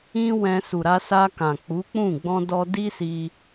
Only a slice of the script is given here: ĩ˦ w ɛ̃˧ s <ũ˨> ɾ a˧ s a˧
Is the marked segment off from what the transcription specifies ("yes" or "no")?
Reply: yes